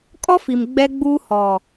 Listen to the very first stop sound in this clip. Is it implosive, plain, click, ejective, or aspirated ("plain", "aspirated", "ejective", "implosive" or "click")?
ejective